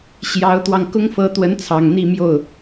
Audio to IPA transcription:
ɕ j ɑ˧˥ ʊ̯ t̪ w ɑ˧ ŋ k ʊ˥ ŋ f ɤ˧˥ t̪ w ə˧˥ n t͡sʰ ɑ˨˩ ŋ n̪ i˥˧ m j o˥˩ ʊ̯

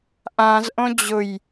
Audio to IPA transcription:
ʔ ã z ʔ õ d͡ʑ ʊ j

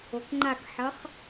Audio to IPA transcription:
o k ŋ͡ǃ a k ħ ʌ χ

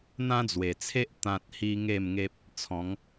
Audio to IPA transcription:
n̪ ã˦ d͡z w e˨˩ t͡sʰ e˦ ʔ t̪ ã˨ t̚ h i˦ ŋ e˥˧ m ŋ e˦ p̚ | t͡sʰ ɔ̃˨˦ ŋ

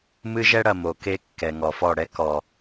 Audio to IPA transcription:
m ɨ˦ ʒ ɛ˦ ɽ ɐ˨ m o˨ k e˦ kː ɛ˨ ŋ ɔ˨ f ɔ˦˨ ɽ ɛ˦ k ɔ˨

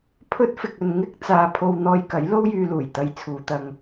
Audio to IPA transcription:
pʰ ɵ˥ t̚ f ɪ˧ k̚ ɵ˧ n ŋ ɪ˥ k̚ t͡s aː˧ pʰ o˧ w n̪ ɔː˧ j k ɐ˨˥ j l o˥ w j yː˧ l uː˨˩ j t̪ ɐ˧ j t͡sʰ uː˨˧ t̪ ɐ˧ ŋ

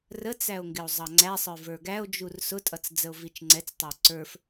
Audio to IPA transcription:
r ə t͡s æ o̯ ŋ ɡ ɪ o̯ zˤ ɑ ŋ͡ǀ æ sˤ ə˞ v ə˞ ɡ æ o̯ d͡ʒ u r s ʊ tʼ ʌ t͡s d͡z ə o̯ v i t͡ʃ ŋ͡ǀ ɛ t͡s tˤ ɪ o̯ ǀ ə˞ f

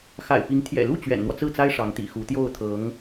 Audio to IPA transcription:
x a̰˨˩ ɪ̯ p i˧˥ ŋ t̪ʰ j ɛ̰˨˩ l u˥˩ t͡ɕ ɥ ɛ̰˨˩ n n̪ w ɔ˦ t͡s ɹ̩˥˩ t͡s a˥ ɪ̯ ʂ ɑ˧˥ ŋ t̪ ḭ˨˩ x u˧˥ t̪ j o˥˩ ʊ̯ t̪ʰ ɤ˧˥ ŋ

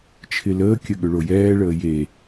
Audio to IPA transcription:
t͡ʃʰ ɪ l əː kʲ ə ɠ ʏ ɭ o j ɛː ɭ əː j e

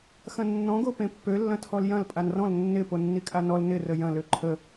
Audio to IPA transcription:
x ɐ̃ nː ɔ̃ ɡ o p ẽ pː ø lː ɐ̃ tʰ ɔ l j ɐ̃ l pʼ a n r ɔ̃ l nː ɪ p o nː i kʼ a n ɔ l n ɪ r ə j ɐ̃ l ø ǃʰ ə

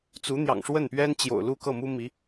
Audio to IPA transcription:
t͡s u˧˥ n̪ j ɑ̰˨˩ ŋ ʂ w ə˥˩ n p ɥ ɛ˥ n t͡ɕ j o̰˨˩ ʊ̯ l u˥˧ k ɤ˥˩ m u˥ m i˧˥

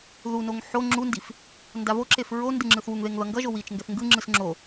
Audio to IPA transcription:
ð u n o ŋ ħ o ŋ͡ǁ u n d i f | n d a v o ǁ e f ɹ o n d ɯ ŋ͡ǁ ɯ θ w u ŋ ð e ŋ ð ʌ ŋ ɡ ʌ ʒ o w i t͡ʃ ŋ ɡ ɛ θ ŋ ɡ ɯ ŋ͡ǁ ɯ s ŋ͡ǁ o

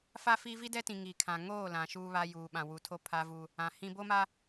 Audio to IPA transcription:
f a˦ f i˦ v i˦ d ɛ˦ t ĩ˨ ŋ i˨ kʰ ã˨ ŋ oː˦˨ l ã˨ ʃ uː˦ β a˦ j uː˨ ɓ ã˨ w u˨ tʰ o˦ pʰ a˦ v u˦ | ã˨ h ĩ˦ b o˦ m a˦

